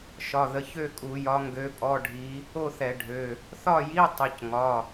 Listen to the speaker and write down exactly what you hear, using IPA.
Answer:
ʃ ɒ˩˧˩ ð ə˩˧˩ ç ø˥˨ kʼ u˧˩˧ j ɒ˧˥ ŋ ɡ ø˧˥ pʼ ɔ˧˥˧ ɖʱ i˧˥ | o˥˨ θ ɛ˧˩˧ ɖʱ ø˩˧˩ | θ ɒ˥˨ j i˧˥˧ tˤ ə˩˧˩ c ŋ ɒ˩˧˩

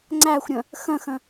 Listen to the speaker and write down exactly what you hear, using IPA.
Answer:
ŋ͡ǀ æ xʷ ɾʲ ə̃ | x ə̃ x ə̃

